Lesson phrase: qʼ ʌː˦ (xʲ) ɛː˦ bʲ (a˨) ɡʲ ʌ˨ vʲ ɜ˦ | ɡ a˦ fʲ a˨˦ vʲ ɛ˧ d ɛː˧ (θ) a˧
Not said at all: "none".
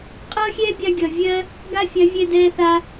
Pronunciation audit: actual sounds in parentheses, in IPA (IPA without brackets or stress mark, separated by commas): xʲ, a˧, θ